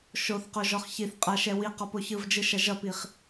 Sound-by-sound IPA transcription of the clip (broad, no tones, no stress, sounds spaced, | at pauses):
ʃ o θ q o ʒ ɔ χ ç i θ qʼ a ʃ ɛ w i q ɔ p o ç ɯ v d͡ʒ ɯ ʃ ɐ ʒ ʌ p i χ